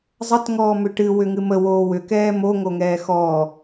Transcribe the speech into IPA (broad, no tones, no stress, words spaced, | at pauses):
zˤət ŋɔːmʏʈɨ wʏŋɨmə woːwʏ kɛːmo ŋoŋɛːxɔː